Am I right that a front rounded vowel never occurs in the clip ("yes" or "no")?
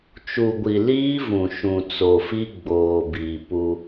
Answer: yes